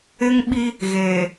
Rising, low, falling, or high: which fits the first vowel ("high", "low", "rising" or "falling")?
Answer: high